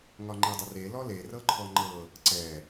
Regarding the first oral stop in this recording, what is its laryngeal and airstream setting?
click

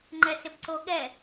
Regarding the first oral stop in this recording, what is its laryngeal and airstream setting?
click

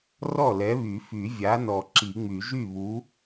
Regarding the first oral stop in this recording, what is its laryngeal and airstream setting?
click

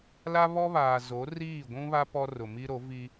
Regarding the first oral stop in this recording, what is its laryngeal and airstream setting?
plain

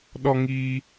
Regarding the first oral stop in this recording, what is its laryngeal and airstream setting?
implosive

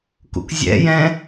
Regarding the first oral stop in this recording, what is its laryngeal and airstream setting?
plain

